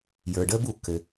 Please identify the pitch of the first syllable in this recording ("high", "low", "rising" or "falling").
low